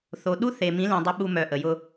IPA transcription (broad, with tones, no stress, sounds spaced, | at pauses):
θ o˨ ɗ u˦ θ e˨ m ĩ˨˦ l ĩ˨ dˤ ʊ˦ ɓ u˦ m œ˨ ʔ ə˨ j ʊ˦